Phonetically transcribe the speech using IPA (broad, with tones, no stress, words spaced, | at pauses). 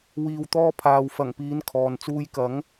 wiː˨wt̪ɔː˧pʰaː˨w fɐ˨˩ŋpiː˨˧n kʰɔː˨n t͡suː˧j kɐ˨˥ŋ